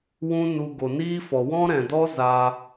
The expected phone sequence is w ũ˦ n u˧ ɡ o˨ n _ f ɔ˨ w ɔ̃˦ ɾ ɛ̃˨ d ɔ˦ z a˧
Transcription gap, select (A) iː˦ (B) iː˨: A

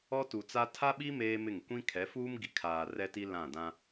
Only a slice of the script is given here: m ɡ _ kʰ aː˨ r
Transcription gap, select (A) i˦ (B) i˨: B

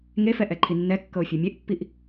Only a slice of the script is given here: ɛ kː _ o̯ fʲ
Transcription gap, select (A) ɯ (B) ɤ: B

